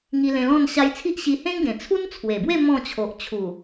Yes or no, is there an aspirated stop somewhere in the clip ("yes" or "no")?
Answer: yes